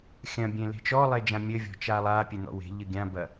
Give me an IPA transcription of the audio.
xʲ ɐ̃ bʲ ẽ l e̤ t͡ʃ ɔ lˠ e d͡ʒ ã mʲ ɘ vʲ ɔ̤ t͡ʃ a lˠ a pʲ e n̪ ɔ̰ w e̤ ʎ ɨ ɡʲ ã b ɐ

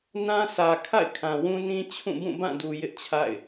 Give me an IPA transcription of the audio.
n ã˦ sʰ ä˨ kʰ a̰˦˨ ɪ̯ kʰ ã˨ w ũ˦ n ĩ˦ t͡ɕʰ ũ˦˨ b ũ˦˨ b ã˦˨ d u˨ j ɪ˦ ʔ t͡ɕʰ a̰˦˨ ɪ̯

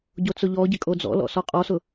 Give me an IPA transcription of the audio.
ɟ o t͡s ʊ ʎ ɔ ɟ ɪ kʼ o d͡z ɔ̰ l ɔ̰ s ɔ qʼ ɔ s ʊ

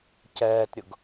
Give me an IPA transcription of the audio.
c ɛː t ɾʲ ʊ ɡ

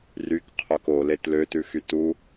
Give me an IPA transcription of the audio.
r y k qʰ œ k o l e t l ø t ʉ x y t u

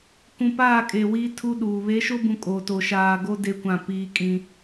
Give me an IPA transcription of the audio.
k ũ˨ p aː˦˨ kʼ e˨ w iː˦ tʰ u˦ ɗ uː˨ β e˨˦ ʃ o˦ b ũ˨ kʼ o˨ t o˨ ʃ aː˨ ɡ o˦ d e˦ kʷ ã˦˨ p iː˦ kʼ ĩ˦

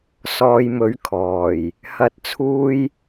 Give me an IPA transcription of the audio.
s ɔː˧ j m ɵ˨˥ ɥ kʰ ɔː˨˩ j | h ɐ˨˥ t̚ t͡sʰ uː˧ j

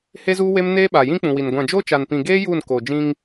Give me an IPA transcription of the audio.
h e˦ z uː˦ w e˦ m n eː˦ ɓ a˨ j ĩ˦ k͡p ũ˨ w i˨ n ɡʷ ã˨ d͡ʒ o˦ t͡ʃ a˨ n p ĩ˨ ɡ eː˦ j uː˦˨ n k oː˨ d͡ʒ ĩ˦ ŋ

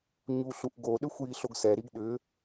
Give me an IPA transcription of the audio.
ɲ u ɬ u ʔ ɡ o ɗ ʏ xʷ j i ɬ o ɡ s ɛ ɾ i ɡ ɗ ʏ

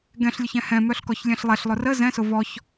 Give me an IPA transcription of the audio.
ɡ ɛ̃ ɬ lʲ ʊ ç ɛ̃ h ɛ̃ m œ ɬ k ɔ ç lʲ ɛ̃ ɬ lˠ ɛ ɬ lˠ ʊ r ə z ɛ̃ s ʊ v ɔ ç

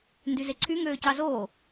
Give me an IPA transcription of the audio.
n d y z e ǀʰ y ŋ øː c ɑ z oː

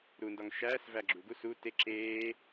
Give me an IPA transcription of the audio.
ɾ u n d ɒ ŋ ʃ æː s v æ ɡ͡ǁ u ɡ u s u t e ǁ eː

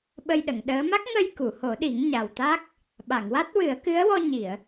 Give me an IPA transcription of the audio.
ɓ ə˧ j ɗ ə˨˩˨ ŋ ɗ əː˧˥ m a˦˥ k̚ ŋ ə˧ j k u˨˩˨ h o˨˩˦ ɗ i˨˩˦ ŋ ɲ a˨˩ w t̪ a˦˥ k̚ | ɓ a˨˩˨ ŋ w a˦˥ t̚ w ɨ˨˩˦ ə̯ k ɨ˧˥ ə̯ w ɔ˧ ɲ i˨˩˨ ə̯

